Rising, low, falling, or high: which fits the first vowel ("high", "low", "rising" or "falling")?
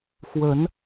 rising